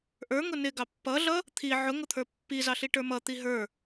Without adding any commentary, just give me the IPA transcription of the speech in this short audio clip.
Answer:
ʔə˞ŋʊ nɪɡɑ pːʌɮʌ | t̪ʰi ʕʊŋʊt̪ʰə˞ pːizɑɬiʈə˞ mʌt̪i ɦə˞

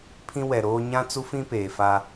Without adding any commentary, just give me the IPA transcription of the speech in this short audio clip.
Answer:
pʰĩ˦wɛ˨ɾoː˦ ɲã˦t͡su˦fĩ˦ peː˨fa˦

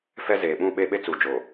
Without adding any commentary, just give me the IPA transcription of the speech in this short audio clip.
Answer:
fɛ˦ zeː˨ɓũ˦˨ ɓe˦ɓe˦ t͡su˨d͡ʒo˨

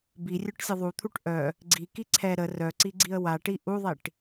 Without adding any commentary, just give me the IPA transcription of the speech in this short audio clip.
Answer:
birʲœʈsʲə ðˤut̪ʰuʈ ʔœ | ɡ͡ǀiki ǀʰɛ ɾə rœǀiɡ͡ǀiə̯ waʈi ʔuðˤiʈ

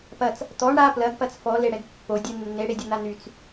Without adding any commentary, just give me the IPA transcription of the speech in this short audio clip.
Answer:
pɐt͡s | t̪ɔɳ ɽa plɐɡpɐt͡s fɔleɽɛɡ pːodʲɛ nːeɽedʲɐn̪a nyt͡s

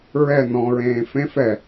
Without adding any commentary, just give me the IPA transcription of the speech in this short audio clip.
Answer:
ɹɛ nɔ̃ɹẽː fẽf ɛ

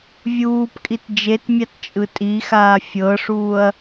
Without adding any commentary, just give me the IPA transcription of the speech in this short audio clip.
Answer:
vʲuːpkʼit d͡ʒetmʲatt͡ʃʼɯ tʼixaː fʲɤʂuːɐ̯

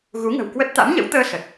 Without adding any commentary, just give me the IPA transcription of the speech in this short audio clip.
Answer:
ɣu˨˦ŋə̤˨˩wkwə˦˥t̚ t̪a̰˧˥mɲə̰˧˥wt̪əː˧ sə˨˩t̚

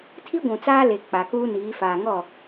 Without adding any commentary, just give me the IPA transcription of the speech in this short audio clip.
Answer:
tʰi˦ɡʷũ˨ t͡saː˦le˨ k͡pa˨kuː˦niː˨˦ faː˨ŋɔ˦˨

